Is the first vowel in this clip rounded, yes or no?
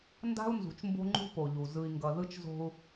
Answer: no